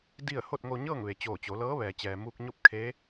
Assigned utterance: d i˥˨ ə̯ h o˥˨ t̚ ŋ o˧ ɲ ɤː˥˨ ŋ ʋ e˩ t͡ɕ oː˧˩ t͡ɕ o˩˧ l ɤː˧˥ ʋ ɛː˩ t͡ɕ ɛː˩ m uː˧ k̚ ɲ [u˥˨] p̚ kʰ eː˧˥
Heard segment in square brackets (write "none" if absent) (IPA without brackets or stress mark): o˥˨